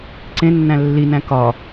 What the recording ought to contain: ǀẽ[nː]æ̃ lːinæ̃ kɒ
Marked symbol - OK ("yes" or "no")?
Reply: yes